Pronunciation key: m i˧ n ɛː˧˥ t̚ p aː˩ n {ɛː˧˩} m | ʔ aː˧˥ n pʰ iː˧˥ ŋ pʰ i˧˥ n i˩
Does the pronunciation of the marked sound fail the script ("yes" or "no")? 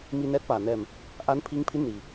no